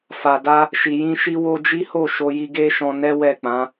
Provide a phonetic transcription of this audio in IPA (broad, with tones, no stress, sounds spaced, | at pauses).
f a˨ d a˧ | ʃ i˨ j ĩ˧ ʃ i˦ w o˧ d͡ʒ i˦ h o˦˨ ʃ o˧ j i˧ ɡ e˦ ʃ ɔ̃˧ n ɛ˦ w ɛ˦˨ k͡p ã˨˦